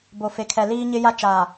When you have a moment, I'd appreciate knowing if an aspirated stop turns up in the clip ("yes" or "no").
yes